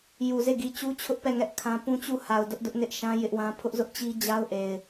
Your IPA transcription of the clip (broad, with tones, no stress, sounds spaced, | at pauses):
j u˨ z e˦˨ ɡ i˨ t͡ɕ u˦ t͡ɕʰ ʊ˦ ʔ p ɛ˦˨ ŋ ɛ˦ ʔ kʰ ã˦ p ũ˦ t͡ɕ u˦˨ h a˨ ʊ̯ d ʊ˦ ʔ d ʊ˦ ʔ n ɪ˦ ʔ ʃ ã˦ j ɪ˦ ʔ w ã˦ pʰ ʊ˦ ʔ z ʊ˦ ʔ t͡ɕ i˦ d͡ʑ a˦ ʊ̯ ʔ e˨ ɪ̯